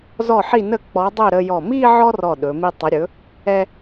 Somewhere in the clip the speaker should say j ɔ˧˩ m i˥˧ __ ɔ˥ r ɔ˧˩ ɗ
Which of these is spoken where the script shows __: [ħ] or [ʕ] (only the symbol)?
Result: ʕ